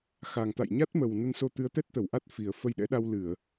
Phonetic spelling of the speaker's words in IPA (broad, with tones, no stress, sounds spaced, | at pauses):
x a˨˩ ŋ t̪ a̰˧˨ j ɲ a˦˥ t̚ m ə˨˩ w n ə˧ n s o˧ t̪ ɨ˨˦ ə̯ t̪ ɛ˦˥ t̚ t̪ ə˧˩ w ʔ a˦˥ t̚ f i˨˩ ə̯ f ə˧ j ɗ ɛ̰˧˥ ɗ a˧ w l ɨ˧˩˨ ə̯